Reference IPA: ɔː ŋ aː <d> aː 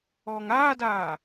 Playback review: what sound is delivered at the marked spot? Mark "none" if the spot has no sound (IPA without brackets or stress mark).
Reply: d